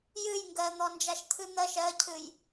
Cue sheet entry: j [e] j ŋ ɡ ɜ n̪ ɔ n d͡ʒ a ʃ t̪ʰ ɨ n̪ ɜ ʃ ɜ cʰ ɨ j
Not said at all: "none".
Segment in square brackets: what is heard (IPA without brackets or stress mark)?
ɨ